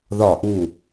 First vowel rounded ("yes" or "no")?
yes